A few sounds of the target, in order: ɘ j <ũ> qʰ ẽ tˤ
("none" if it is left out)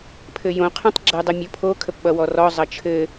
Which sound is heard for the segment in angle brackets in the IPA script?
õ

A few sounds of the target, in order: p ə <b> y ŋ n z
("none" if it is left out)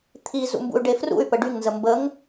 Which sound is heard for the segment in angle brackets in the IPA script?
ɖ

